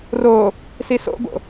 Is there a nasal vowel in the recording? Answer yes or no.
no